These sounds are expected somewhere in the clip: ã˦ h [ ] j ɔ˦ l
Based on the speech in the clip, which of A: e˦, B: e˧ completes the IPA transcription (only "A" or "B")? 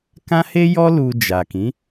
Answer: A